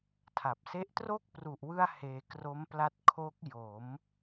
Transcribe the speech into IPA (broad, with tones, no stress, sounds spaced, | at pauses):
tʰ a˨˩ p̚ s e˦˥ ʔ t r o˥˩ k̚ p r u˨˩ ʔ w ɯ˧ a̯ h eː˧ k r o˦˥ m p l a˦˥ t̚ kʰ o˦˥ k̚ j o˩˦ m